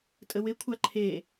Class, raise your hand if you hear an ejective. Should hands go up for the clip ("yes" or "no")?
yes